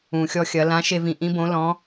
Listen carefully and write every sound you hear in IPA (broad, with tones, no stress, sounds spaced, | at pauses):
ũ˩ xʲ ɔ˧ xʲ ɐ˩˧ l ã˨˥ ʃ e˧ v ĩ˩ ʔ ĩ˦˥ b õ˨˥ l ɔ̃˨˥